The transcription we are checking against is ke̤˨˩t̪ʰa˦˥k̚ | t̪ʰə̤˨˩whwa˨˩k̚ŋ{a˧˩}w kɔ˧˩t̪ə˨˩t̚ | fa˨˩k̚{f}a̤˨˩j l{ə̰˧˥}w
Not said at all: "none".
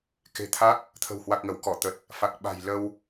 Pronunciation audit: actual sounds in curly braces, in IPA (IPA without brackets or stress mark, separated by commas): ə˧˩, ɓ, ə˧